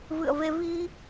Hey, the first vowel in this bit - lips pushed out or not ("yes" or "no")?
no